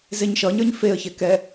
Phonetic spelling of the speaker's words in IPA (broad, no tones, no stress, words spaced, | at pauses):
zeɲʃʌɲə˞ɲ feə̯çɛ kɛ